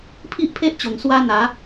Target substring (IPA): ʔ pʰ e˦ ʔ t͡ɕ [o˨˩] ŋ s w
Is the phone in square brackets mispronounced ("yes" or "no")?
no